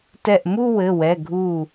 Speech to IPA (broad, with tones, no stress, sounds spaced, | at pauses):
t ɛ˧˩ ʔ m u˥˧ w ɘ˩˧˩ w ɛ˩˧˩ ɡʱ u˧˩